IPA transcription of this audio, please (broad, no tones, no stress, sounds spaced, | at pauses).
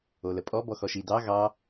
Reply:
o l ə pʼ ɔ b ɔ x ɔ ʃ i d ɑ ɣ ɑ